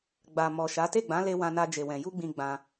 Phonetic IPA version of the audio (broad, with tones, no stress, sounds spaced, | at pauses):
ɡ͡b a˨ m ɔ˨ ʃ a˨˦ t e˦˨ ɡ͡b ã˨˦ l e˧ w ã˧ n a˧ d͡ʒ e˨ w ɛ̃˨ j u˧ ɡ͡b ĩ˨ ɡ͡b ã˧